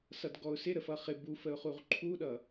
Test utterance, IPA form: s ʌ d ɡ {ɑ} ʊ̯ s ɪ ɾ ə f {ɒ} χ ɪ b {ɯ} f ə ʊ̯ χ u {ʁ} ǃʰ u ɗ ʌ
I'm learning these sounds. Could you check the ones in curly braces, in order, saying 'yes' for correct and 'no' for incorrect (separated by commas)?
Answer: no, no, no, yes